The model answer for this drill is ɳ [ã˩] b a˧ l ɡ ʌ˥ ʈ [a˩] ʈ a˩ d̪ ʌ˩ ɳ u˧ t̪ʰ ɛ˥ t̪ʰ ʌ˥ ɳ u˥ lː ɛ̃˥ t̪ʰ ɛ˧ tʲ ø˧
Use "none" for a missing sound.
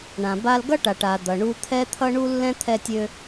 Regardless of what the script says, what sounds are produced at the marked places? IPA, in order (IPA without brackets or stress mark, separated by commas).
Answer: ã˩, a˩